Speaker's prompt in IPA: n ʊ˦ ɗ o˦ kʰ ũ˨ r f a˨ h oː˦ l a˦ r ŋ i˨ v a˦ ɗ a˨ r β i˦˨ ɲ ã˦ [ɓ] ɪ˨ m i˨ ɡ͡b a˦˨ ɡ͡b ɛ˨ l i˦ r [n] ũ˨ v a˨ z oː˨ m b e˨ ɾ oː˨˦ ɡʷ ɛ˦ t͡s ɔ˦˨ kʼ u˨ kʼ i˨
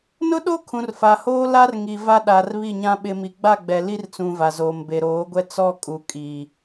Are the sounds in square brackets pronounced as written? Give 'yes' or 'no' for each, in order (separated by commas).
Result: yes, no